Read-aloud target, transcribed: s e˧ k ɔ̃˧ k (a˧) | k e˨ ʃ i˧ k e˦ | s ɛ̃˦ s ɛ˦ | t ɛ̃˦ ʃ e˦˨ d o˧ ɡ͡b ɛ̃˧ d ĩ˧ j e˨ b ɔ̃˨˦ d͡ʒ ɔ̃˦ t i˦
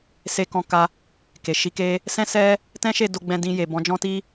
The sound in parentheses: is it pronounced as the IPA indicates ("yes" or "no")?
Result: yes